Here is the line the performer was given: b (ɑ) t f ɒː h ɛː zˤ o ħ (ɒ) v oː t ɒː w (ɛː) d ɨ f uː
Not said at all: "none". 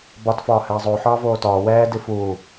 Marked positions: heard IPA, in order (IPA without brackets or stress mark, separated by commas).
ɒ, ɒː, ɛː